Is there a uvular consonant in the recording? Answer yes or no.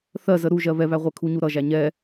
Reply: yes